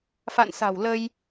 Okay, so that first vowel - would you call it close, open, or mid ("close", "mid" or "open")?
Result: open